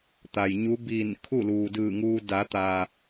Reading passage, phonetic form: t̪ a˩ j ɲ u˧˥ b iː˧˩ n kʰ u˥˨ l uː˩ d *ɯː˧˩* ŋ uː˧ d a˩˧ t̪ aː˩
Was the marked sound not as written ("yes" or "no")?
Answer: no